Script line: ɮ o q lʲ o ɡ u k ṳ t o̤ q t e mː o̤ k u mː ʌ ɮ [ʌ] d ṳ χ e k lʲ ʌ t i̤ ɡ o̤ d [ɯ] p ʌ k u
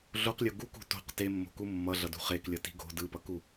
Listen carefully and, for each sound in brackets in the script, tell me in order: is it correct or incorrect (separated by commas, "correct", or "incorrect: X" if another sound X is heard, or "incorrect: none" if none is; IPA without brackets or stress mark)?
correct, correct